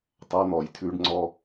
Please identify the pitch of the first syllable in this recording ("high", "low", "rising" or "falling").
high